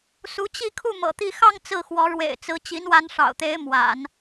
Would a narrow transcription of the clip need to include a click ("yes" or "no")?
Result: no